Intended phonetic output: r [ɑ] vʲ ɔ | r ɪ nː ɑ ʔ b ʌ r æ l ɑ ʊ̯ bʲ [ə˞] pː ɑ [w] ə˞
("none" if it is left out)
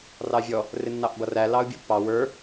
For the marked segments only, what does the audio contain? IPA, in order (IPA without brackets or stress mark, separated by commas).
ɑ, ʌ, w